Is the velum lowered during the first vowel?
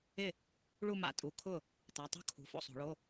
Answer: no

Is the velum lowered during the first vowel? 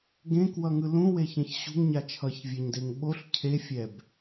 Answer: yes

